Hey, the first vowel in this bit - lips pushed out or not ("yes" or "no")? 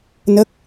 no